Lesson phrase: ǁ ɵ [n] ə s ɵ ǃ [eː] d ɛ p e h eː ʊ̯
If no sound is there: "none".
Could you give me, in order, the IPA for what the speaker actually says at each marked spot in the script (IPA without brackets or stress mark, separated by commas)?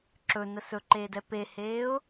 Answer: n, eː